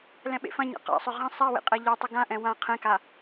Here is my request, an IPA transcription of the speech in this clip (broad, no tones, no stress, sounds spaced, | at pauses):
l ɛ̃ ɓ ḛ f ɐ̃ ɲ a̰ q a̰ sˤ ʏ ʁ ɐ̃ sˤ a w ḛ qʼ ɛ ʎ ɐ tˤ ʏ ɡ ã ʔ ɛ̃ w ã qʰ ɛ̃ k a